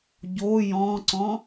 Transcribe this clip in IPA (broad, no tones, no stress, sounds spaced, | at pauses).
ɟ o j ɔ̃ ǀ ɔ̃